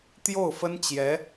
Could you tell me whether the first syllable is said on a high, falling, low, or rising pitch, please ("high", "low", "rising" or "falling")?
falling